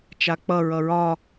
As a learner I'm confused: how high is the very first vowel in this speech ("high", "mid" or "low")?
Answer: low